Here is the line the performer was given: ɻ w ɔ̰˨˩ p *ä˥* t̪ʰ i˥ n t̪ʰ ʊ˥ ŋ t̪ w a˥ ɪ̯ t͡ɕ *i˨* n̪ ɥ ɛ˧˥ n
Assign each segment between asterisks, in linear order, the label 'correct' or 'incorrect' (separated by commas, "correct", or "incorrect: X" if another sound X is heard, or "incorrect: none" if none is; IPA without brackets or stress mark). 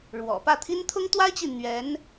incorrect: ä˥˩, correct